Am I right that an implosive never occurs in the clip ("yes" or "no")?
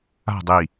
yes